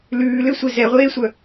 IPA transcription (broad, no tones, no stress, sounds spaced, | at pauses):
l ʉː l ʏ sʷ e z ɛ ʁʷ eː sʷ œ